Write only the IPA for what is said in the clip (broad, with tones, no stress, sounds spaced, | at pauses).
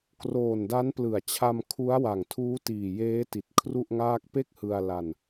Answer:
k r oː˨˩ n d a˦˥ n p l ɯ˨˩ a̯ t͡ɕʰ a˧ m kʰ u˦˥ a̯ w a˨˩ ŋ tʰ uː˦˥ t iː˨˩ j eː˦˥ t i˨˩ t̚ kʰ r u˥˩ ʔ ŋ aː˥˩ k̚ p e˥˩ k̚ h ɯ˧ a̯ l a˧ n